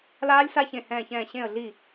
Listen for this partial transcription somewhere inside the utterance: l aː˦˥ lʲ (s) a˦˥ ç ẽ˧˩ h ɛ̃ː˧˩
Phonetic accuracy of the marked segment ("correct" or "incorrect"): correct